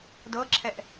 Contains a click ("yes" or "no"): yes